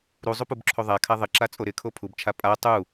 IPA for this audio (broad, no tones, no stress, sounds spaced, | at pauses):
ɾ u zˤ u p u b ǁʰ o ðˤ a kʰ a ðˤ ɪ ǁ a t͡sʼ o ɾ ɪ kʰ o pʰ u b t͡ʃʰ a pʼ a tˤ u